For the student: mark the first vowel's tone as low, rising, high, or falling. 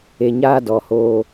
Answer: low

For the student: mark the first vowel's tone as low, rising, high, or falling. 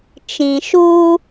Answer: low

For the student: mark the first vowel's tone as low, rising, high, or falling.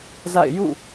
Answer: falling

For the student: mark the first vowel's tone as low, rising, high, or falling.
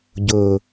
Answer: low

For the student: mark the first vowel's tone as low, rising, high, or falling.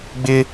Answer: high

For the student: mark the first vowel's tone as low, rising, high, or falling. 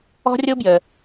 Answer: high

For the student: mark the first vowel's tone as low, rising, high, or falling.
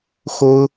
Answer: high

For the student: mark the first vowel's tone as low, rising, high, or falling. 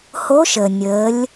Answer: rising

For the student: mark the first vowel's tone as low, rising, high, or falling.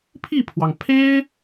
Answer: falling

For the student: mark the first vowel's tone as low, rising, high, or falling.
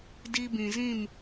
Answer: high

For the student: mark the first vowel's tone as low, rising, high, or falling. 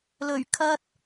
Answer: low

